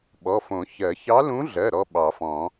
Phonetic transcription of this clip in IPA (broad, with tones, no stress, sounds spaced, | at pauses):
ɓ ɔ˩˧˩ f õ˨˩˦ ç ɜ˨˩˦ ç ɑ˧˥ l ũ˧˥ ɮ ɜ˩˧˩ ɾ ɔ˥ ɓ ɑ˨˩˦ f ɔ̃˨˩˦